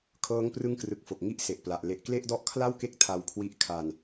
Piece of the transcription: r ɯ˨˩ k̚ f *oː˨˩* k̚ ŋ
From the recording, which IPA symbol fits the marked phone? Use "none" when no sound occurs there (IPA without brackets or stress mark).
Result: o˨˩